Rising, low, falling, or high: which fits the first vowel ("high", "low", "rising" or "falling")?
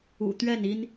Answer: low